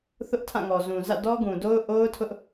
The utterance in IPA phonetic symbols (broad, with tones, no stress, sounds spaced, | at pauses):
θ ʊ˦ ʔ tʰ ã˦˨ ŋ ɔ˨ z ũ˨ z ä̰˦˨ d ɔ˦ ɡ ũ˨ d o˦ ʊ̯ ʔ o˦ ʊ̯ tʰ ʊ˦ ʔ